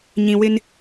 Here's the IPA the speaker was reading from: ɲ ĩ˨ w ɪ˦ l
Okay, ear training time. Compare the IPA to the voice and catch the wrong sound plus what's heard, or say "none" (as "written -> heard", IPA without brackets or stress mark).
l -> n